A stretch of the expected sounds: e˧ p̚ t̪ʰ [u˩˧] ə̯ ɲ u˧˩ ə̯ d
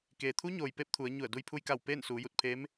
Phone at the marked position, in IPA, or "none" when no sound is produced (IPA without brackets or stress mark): u˩˧